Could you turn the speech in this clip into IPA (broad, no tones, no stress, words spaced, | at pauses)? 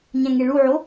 ɲæ̃ŋeɭuʕo